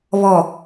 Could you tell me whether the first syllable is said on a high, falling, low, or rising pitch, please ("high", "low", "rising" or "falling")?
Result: low